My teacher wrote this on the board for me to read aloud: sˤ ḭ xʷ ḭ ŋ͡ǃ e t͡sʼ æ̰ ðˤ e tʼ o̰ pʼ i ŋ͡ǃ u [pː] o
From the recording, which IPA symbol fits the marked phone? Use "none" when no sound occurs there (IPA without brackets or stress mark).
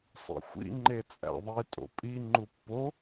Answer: pː